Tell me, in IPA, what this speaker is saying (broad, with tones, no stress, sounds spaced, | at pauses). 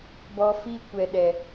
b ɔ˧ f iː˦ kʷ ɛ˨ ɗ ɛ˨